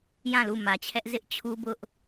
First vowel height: low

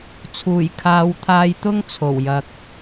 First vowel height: high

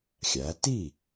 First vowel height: low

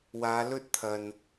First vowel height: low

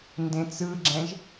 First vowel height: mid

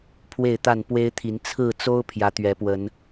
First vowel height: mid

